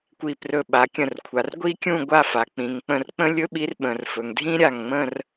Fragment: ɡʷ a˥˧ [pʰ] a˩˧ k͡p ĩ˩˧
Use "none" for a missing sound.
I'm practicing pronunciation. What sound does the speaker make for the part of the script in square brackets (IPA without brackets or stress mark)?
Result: f